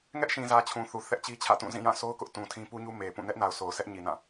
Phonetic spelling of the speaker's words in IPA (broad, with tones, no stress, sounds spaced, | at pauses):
ŋ ɛ˦ ʔ ʃ ĩ˨ z ä˨ t͡ɕʰ ũ˨ θ u˨ θ ɛ˦ ʔ t͡ɕ i˦ t͡ɕʰ ä̰˦˨ t ũ˦˨ z ĩ˦˨ j ã˦˨ sʰ o˦ ʊ̯ k ʊ˦ ʔ t ũ˨ tʰ ĩ˦ p u˦ ɲ u˦ m e˨ p ũ˦˨ n ɛ˦ ʔ n a˨ ʊ̯ sʰ o˨ ʊ̯ s ɛ˦ ʔ ɲ i˨ n ã˦˨